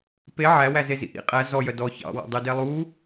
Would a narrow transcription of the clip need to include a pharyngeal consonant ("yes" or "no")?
yes